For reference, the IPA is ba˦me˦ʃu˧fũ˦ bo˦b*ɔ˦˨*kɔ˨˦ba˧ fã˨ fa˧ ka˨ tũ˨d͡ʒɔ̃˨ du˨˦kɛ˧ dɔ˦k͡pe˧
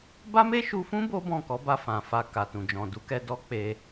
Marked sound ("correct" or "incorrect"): incorrect